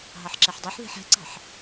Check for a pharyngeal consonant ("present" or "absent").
present